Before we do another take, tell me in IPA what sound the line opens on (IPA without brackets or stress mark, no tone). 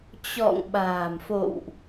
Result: t͡ɕ